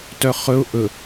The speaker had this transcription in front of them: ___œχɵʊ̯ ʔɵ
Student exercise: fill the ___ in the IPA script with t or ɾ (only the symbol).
t